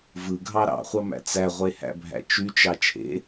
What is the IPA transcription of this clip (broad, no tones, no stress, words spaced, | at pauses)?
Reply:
vɯɡʱɑ ɾɑ̰χʷɑmæ̰ t͡sæʁʷehæ̰bʱæ̰ t͡ʃyt͡ʃɑ t͡ʃʰḛ